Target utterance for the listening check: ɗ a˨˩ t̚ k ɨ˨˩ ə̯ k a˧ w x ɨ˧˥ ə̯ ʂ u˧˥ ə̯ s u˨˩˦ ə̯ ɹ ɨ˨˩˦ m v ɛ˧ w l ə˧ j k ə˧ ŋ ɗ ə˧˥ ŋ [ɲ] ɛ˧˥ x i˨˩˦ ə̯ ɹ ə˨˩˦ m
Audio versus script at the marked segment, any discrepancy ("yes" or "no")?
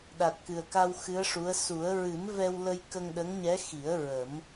no